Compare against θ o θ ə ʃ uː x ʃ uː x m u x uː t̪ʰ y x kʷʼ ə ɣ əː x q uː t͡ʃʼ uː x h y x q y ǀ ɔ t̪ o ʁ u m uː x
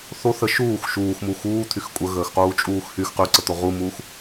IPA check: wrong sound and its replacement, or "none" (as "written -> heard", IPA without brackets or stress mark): ɔ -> ə